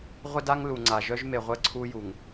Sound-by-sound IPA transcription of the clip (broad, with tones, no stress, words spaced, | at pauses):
ʁʷə˦da˦ŋ lu˨ŋ͡ǀa˨ʒœ˦ʒ me˨ʁʷə˦˨ǀʰu˦ju˨ŋ